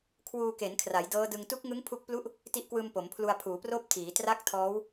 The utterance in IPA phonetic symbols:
kʰwuː˧ke˩˦n kʰra˩˦jdɤː˦˥dɯ˧ŋ tu˦˥k̚ŋɯ˦˥ŋ pʰu˥˩k̚ plu˥˩ʔ | ti˦˥ʔkwɯː˧m po˩˦mpʰlu˧a̯pʰuː˩˦proː˥˩p̚ tʰiː˩˦tra˥˩k̚ tʰɔː˦˥w

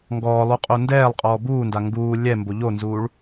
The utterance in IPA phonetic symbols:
ŋɡɔːlˠu qʼondɛːlˠqʼɔː buːnda ŋɡuː lʲɛmbo ʎonzuːɭ

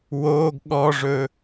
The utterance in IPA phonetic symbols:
woːɡ ɠɔʐɵ

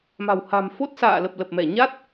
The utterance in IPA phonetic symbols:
ma̤˨˩wha̤˨˩m fo˦˥t̚sa̰ː˧˨lə˨˩p̚ lə˨˩p̚mɛ˧˩ ɲa˦˥t̚

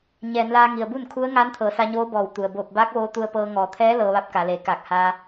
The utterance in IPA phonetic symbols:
ɲɛː˩˧nlaː˧ŋi˩ə̯bu˥˨n kʰu˧˥ə̯ ŋaː˧˥nt̪ʰɤː˩˧sa˧ɲoː˧˥ bɔː˧˩wt̪u˩ə̯ boː˧˩p̚baː˧˥k̚ʋoː˧ t̪u˧ə̯pɤː˧ŋɔː˩˧ t̪ʰɛː˧˥ lɤː˧ʋa˧˥p̚ka˩˧leː˩˧ kaː˧˩k̚haː˧

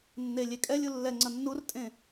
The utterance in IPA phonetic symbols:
nːe lʲekʼɛlʲu lːɛ ŋ͡ǀʌnːurtʼẽ

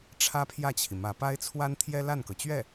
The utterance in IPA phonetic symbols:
ʈ͡ʂʰä˥pʰjä˥˩t͡ɕʰi˩ mä˧˥pa˥ɪ̯t͡sʰwa˥n t̪ʰjɛ˥la˥˩nkɤ˩t͡ɕɥɛ˥˩

